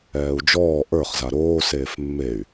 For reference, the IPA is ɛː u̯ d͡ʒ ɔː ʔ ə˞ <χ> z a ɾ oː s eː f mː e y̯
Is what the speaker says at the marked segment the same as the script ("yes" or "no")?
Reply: yes